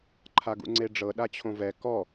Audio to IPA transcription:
ǃʰaɡṵŋ͡ǀeɖ͡ʐɤ ɗat͡ɕʰõvɛ kɔ

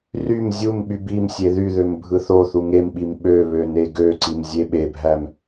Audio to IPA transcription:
rym zʲum ɓybimsʲe ðyðøm bʱɯθoθu ŋemɓim ɓøβø neɡøǀim zʲeɓebʱæm

